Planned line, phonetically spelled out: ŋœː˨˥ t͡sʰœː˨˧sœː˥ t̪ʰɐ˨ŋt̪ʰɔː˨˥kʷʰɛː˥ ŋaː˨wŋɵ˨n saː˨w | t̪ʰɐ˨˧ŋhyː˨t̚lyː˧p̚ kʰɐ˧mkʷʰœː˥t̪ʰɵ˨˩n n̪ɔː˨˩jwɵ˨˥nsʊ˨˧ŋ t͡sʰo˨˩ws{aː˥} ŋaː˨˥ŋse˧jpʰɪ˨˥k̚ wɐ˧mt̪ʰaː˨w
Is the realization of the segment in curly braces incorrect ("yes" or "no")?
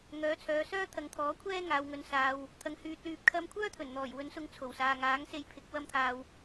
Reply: yes